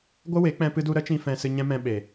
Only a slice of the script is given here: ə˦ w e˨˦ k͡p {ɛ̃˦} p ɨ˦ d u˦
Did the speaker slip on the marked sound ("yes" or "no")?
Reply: no